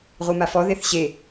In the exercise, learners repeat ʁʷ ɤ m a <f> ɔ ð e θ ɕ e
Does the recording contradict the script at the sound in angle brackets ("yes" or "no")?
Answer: no